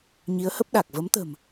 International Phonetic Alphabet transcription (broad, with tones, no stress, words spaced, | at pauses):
ɲi˨˦ə̯hə˦˥p̚ ɗa˨˩k̚ və˨˦mt̪ə̤˨˩m